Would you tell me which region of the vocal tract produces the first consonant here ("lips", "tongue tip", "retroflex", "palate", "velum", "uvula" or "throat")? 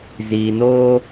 tongue tip